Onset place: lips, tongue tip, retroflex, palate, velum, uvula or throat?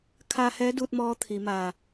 velum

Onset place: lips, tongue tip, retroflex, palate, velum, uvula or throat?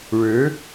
retroflex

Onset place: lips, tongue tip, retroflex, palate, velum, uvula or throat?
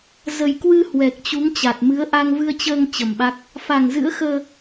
tongue tip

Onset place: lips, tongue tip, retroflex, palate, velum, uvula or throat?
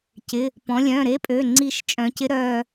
palate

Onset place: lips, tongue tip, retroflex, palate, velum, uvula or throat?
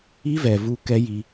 lips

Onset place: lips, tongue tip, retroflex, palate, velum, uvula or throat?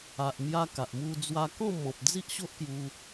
throat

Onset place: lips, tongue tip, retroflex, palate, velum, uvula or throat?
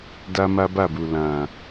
tongue tip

